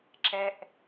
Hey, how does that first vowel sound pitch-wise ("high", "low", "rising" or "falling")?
high